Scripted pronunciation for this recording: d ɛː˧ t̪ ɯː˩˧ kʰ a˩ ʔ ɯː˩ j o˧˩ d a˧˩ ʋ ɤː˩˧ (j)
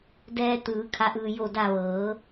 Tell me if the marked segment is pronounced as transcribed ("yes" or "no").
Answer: no